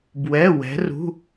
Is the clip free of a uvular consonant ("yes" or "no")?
yes